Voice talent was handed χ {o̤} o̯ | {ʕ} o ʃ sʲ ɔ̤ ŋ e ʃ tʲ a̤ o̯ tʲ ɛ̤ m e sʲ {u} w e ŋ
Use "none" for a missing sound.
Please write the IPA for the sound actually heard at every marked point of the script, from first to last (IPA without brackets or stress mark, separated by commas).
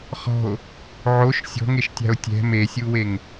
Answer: ɔ̤, ʕ, u